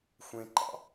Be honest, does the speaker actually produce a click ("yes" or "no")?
yes